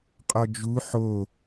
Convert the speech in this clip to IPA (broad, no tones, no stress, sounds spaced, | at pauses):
qʼ ɔ d͡ʒ u ħ o